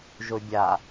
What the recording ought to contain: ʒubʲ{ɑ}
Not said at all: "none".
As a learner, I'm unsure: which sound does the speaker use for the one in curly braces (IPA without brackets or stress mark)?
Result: a